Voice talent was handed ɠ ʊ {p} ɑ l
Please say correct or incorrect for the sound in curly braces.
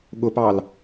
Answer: correct